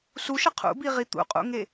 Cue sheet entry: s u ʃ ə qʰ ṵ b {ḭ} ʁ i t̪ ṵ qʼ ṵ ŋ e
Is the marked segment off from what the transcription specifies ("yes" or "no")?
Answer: yes